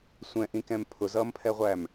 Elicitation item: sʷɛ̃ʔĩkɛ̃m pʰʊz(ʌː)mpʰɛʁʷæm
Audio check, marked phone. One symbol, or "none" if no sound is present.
ʌː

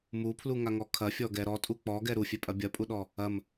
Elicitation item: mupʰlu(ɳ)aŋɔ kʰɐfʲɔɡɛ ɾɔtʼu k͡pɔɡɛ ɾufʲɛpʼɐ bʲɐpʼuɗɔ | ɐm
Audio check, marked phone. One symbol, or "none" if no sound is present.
ŋ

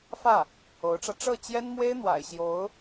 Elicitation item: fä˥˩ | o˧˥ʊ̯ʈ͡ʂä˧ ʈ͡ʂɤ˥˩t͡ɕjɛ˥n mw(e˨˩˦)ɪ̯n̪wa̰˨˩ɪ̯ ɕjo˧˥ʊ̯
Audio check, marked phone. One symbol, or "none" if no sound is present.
e˥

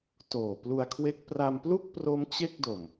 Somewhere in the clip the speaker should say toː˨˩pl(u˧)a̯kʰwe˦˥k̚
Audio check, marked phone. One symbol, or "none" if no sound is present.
u˧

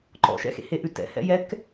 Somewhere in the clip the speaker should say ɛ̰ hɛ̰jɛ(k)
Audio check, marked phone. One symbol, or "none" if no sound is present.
k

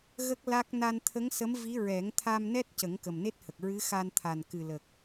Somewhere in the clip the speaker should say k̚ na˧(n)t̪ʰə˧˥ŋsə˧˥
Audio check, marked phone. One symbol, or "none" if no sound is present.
n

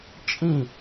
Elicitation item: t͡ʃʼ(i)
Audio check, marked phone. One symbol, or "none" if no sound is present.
ĩ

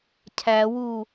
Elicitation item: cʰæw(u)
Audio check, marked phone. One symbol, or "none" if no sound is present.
u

